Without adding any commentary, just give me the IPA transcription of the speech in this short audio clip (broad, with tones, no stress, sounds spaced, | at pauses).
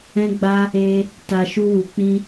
ɛ̃˧ ɡ͡b a˧ | e˧ | t a˨ ʃ u˧ w u˨ k͡p ĩ˧